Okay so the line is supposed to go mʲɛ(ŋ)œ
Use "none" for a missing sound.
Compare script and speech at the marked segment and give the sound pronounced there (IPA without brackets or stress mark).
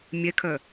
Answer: kʰ